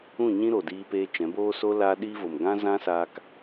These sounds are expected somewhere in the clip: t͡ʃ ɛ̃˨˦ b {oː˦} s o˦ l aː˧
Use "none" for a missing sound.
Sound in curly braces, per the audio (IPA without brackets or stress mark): oː˦